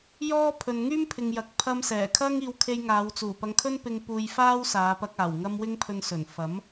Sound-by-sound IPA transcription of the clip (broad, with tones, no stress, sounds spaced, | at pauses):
j ɔː˥ pʰ ɵ˨ n ŋ yː˥ m pʰ ɪ˨ ŋ j ɐ˨˥ k̚ pʰ ɐ˧ m s ɛː˨˩ kʰ ɐ˥ ŋ iː˧ w kʰ e˧ j ŋ aː˨˧ w t͡s uː˨˩ p ɐ˧ ŋ kʰ ɵ˥ n p ɪ˧ ŋ p uː˧ j f aː˥ w s aː˨˧ p ɐ˧ k̚ aː˨˩ w ŋ ɐ˥ m w ɪ˥ ŋ pʰ ɵ˧ n s ɵ˨˩ n f ɐ˨˥ m